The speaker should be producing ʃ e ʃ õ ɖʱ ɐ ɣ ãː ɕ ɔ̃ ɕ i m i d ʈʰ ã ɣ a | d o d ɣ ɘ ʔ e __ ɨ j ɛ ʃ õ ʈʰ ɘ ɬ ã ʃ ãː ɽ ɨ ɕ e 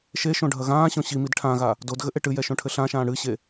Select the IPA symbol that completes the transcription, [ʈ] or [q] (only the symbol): ʈ